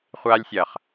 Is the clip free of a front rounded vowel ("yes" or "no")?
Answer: yes